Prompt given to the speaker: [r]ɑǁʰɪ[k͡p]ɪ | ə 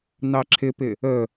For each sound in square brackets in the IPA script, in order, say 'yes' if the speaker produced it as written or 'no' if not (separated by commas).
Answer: no, no